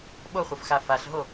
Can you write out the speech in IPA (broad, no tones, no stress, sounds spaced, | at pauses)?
ɓ o χʷ ʌ f x a f a ɬ ɦ o